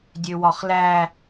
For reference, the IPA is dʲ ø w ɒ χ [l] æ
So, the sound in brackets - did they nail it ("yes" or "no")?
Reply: yes